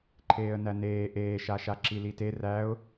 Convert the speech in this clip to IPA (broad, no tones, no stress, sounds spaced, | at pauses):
ǃʰ eː ə̯ n æ n eː ʔ eː ʃ a ʃ a ǁ i l i t e r æ ʊ̯